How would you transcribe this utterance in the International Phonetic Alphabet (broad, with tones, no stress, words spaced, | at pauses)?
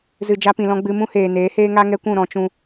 zɨ˨d͡ʒa˧pĩ˨lɔ̃˧ ɡ͡bɨ˧mũ˦ heː˨neː˨˦heː˦ ŋa˦ŋɛ˦kʷũ˦˨ ɾɔ̃˧ t͡ʃũ˦